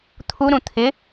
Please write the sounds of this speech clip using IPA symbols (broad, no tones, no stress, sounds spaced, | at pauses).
t̪ʰ u ɾ ũ t̪ʰ ɪ